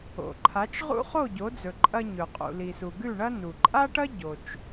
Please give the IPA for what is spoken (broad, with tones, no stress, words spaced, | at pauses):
o̰˩ǃʰa˩˥t͡ʃʁṵ˥ χo˥˩ɟo˩˥d͡zɵ˩ ǃʼɐ˧ɲɵ˩ qʼṵ˩li˩su˩ ɡʉ˥˩ɳɐ˥ nu˩ǃʼa˥ʈɐ˥ ɟo˩t͡ʃ